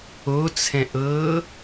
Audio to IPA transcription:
ot͡sʰɛ̃ ʔɤ

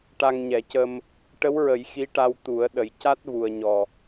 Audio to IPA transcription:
ʈa˧ŋɲɛ˨˩˦cə˧m | ʈə˧˥wɹə˨˩˦j xi˧˥ʈa˧w t̪u˨˩˦ə̯ ɗə˨˩jca˦˥t̚vu˨˩ə̯ ɲɔ˨˩

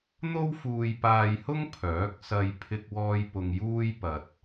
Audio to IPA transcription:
n̪o˥wfuː˧jpaː˧jhʊ˥ŋ pʰœː˨˥k̚ sɐ˧j pʰɪ˧k̚wɔː˧j pʊ˧ŋjuː˥j pɐ˨t̚

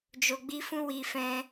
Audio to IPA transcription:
d͡ʒo˧ɡ͡bi˦fũ˦ wi˧fɛ̃˧

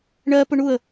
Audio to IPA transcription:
ɳɜ pʊɳuə̯

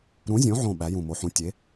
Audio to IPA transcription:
ɾũ˨˥zʲõ˨˥ʕõ˧˩ ɓæ˨˥jũ˧˩mo˨˥ħũ˨˥ tʲe˨˥

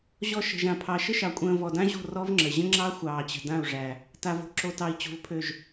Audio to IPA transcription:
ʑɔ˦ ʃə̤˨ʒã˨pʰɑ˨ ʃə˦ʃɑ˨kʷʼə̃ː˨ vɔ˨dã˦ʑo̤˦˨ rɔ˦vŋ͡ǁə˨ ʑə̃˦ŋ͡ǁɑ˦ xʷɑː˨t͡ɕə̤˨ dã˦˨u̯ʐæ˨ | ta˨vo̤˨ ǁo˨tɑ˨i̯ t͡ɕo̤˨vpʰø˨ʒ

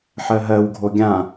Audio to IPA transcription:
ħɜɦɜwɡʱo ɡʲã

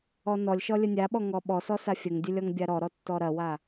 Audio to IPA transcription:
ɔnɔlʲʃɔ lʲənʲaɓɔ ŋɔɓɔsɔ safʲəŋdʲə lʲɔŋbʲaɾɔɾɔ tːɔɾɐwa

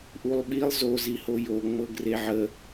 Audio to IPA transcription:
ʔulˠɓilˠ zo zihojo ŋ͡mɤɡreʕə

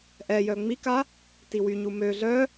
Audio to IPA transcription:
ʔɛjœ ŋ͡mika | tiwy ɲumø ɮœ

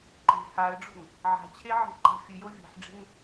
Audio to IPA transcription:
ǃe̤ haə̯ɖ͡ʐo̤ŋ | ʕa̤t͡ɕʰe ʕe̤ǃa̤fʲɨjo vʲɛ̤ħɖ͡ʐe̤ŋ

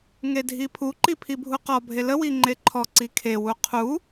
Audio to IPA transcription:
ŋedʱipʰuǃi pʰibʱuqɔbʱe ləwi ŋ͡ǃeǃʰɔǀi kʰewu qʰu

